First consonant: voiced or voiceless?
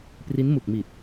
voiceless